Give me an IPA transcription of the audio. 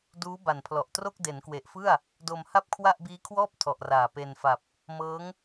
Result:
duː˦˥ba˨˩npʰlɔ˨˩ʔtro˥˩k̚ de˩˦nkwe˨˩ʔfɯ˥˩a̯ | do˧m ha˥˩p̚kʰwa˥˩ʔbiː˦˥kʰwɔː˥˩p̚ tʰɔ˨˩ʔraː˨˩ pe˧nfa˨˩p̚ | mɤː˦˥ŋ

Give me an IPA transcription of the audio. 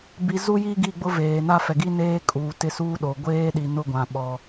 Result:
bi˦ zu˦ji˦ ɡi˦˨ɡ͡bʊ˦ veː˨na˦fɛ˨ɡi˦ neː˦kʼuː˨ tɪ˦suː˦ɗo˨ ɡʷeː˦ɗi˨nʊ˦˨ɡʷã˨ ɓɔ˨

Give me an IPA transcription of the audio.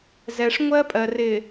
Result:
zɛ˨ʂŋʷɜ˦pʼɜ˨ rɪ˨

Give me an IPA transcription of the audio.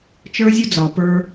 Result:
t͡ʃə˞˦zʲɵ˦d͡zɒ˨pə˞˧

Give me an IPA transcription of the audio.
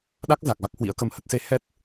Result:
ɗa˦˥k̚za˨˩k̚ va˦˥k̚hwḭ˧˥ə̯kə˧mhə˦˥t̚ se˧hɛ˦˥t̚

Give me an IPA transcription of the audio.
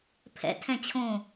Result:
pʰɛ̰tʰɛ̃ t͡ɕʰõ

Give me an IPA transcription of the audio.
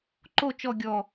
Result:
ǃo t͡ʃɔ ɡʲɔ

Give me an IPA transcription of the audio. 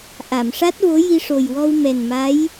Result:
ʔa˨˩˨mʂa˦˥t̚vo˧˥ ji˧ʂo˨˩jwɔ˧w mɛ˨˩nma˧˥j

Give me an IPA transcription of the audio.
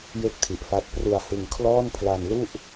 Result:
je˥˩k̚tʰi˨˩ʔfa˦˥t̚ pru˧a̯hɯ˧ŋ kʰlɔː˥˩npʰla˧n lu˥˩ʔ

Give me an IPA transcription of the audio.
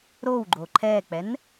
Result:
ɾowɡ͡ǃo ǃʰɛk͡pɛn

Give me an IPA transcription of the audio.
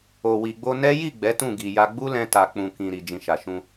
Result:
o˨wi˨ɡ͡bo˧nɛ˦ ji˦˨ ɡ͡bɛ˨˦tũ˦˨ɡi˨ja˧ ɡ͡bu˦lɛ̃˧ta˨ k͡pũ˨kĩ˨ ɾi˨ d͡ʒĩ˨ʃa˨ʃũ˧

